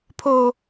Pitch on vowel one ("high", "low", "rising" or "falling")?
low